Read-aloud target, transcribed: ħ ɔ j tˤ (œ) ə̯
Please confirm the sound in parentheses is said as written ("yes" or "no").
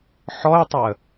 yes